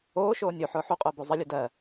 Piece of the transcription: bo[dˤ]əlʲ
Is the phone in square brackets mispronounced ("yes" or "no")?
yes